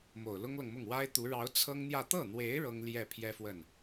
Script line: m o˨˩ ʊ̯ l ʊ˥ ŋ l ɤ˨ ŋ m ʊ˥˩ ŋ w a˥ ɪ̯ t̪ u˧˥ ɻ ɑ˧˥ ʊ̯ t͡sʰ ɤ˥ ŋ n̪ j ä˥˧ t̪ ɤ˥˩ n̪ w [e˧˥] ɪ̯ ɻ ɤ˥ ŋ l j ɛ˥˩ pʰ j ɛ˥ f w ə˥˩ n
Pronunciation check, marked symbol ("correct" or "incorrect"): correct